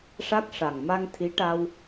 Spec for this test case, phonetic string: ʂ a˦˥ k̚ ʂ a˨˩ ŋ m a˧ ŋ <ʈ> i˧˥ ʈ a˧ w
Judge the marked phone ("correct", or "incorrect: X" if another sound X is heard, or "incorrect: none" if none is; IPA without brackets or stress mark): incorrect: t̪ʰ